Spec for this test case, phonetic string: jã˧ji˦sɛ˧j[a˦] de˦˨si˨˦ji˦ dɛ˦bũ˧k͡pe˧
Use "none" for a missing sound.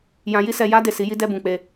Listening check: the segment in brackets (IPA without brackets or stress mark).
a˦